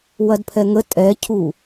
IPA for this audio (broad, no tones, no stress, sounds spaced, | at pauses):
w ɐ d pʰ ɛ ŋ ə tʼ ɛ cʰ u